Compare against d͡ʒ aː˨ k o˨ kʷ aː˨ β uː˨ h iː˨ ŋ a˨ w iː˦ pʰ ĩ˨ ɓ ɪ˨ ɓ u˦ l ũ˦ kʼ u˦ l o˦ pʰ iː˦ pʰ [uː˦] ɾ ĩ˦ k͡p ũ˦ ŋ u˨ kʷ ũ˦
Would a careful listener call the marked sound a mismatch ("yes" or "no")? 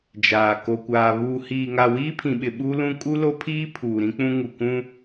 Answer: yes